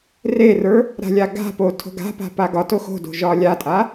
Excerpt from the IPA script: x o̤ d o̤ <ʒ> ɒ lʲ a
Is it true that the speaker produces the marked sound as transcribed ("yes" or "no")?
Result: yes